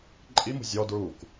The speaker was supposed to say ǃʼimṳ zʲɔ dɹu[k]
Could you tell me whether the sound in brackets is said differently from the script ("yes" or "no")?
no